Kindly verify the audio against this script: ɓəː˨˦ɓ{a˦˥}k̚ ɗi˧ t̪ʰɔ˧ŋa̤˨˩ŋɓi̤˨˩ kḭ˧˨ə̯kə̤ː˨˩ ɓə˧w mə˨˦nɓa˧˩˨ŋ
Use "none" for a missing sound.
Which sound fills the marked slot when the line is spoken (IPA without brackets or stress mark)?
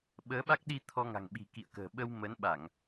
a˦˥